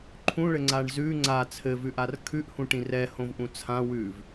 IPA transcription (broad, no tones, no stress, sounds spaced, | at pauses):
ǃʰ ũ ɭ ɘ ŋ͡ǀ a ɳ z ʉ ŋ͡ǀ a t͡sʰ ɘ v ʉ ʔ a r kʰ ʉ ʔ h ũ ʈ ĩ r ɛ h õ v ʔ ũ t͡sʰ ã w ʉ v